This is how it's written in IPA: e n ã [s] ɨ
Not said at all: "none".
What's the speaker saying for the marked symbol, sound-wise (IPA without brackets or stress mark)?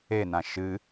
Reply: ʃ